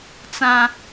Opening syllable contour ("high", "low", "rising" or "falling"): low